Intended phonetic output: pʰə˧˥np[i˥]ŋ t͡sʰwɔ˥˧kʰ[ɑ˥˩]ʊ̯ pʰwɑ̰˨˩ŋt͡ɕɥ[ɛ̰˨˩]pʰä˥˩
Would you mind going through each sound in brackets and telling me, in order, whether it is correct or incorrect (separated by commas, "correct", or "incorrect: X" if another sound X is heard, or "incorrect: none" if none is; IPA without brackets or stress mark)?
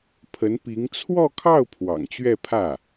incorrect: i˧˥, correct, incorrect: ɛ˥˧